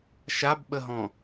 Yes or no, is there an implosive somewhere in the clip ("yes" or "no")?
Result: yes